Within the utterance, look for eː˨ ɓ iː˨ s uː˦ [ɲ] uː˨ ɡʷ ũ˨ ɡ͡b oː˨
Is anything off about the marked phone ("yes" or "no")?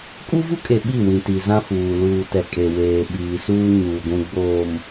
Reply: no